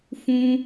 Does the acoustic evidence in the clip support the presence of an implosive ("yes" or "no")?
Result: no